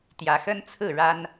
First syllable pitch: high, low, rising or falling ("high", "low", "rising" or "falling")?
rising